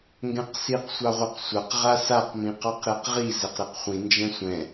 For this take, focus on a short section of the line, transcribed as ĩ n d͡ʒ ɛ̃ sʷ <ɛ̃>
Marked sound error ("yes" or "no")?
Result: no